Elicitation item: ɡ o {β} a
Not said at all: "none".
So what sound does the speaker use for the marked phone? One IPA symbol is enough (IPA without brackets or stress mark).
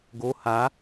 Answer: h